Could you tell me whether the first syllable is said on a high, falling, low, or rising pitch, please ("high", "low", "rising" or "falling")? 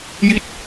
falling